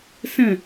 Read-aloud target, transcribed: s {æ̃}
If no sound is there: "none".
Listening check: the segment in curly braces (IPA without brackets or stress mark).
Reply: ə̃